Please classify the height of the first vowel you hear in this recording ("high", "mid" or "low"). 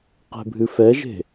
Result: mid